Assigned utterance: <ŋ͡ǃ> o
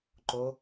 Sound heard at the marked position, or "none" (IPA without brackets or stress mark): ǃ